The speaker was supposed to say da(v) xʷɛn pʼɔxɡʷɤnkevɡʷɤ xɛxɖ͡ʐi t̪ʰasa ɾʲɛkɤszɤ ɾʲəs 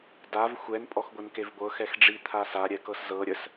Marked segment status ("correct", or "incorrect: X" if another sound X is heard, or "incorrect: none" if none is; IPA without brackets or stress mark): correct